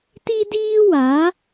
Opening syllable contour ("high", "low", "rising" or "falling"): high